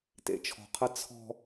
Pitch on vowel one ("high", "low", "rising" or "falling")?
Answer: low